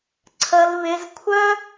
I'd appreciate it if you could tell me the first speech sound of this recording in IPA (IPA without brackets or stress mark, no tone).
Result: ǀʰ